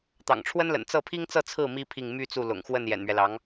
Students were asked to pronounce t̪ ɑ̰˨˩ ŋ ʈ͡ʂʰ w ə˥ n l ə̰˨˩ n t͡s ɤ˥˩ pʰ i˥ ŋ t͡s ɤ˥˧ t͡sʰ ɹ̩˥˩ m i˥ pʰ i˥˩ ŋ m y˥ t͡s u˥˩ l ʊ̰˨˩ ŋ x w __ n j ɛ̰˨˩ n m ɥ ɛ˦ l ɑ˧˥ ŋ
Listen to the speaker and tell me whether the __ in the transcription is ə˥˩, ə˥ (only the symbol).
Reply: ə˥˩